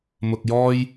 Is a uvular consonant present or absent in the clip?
absent